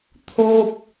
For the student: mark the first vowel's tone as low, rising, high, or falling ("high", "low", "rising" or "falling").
high